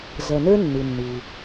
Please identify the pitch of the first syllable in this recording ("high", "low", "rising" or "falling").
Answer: low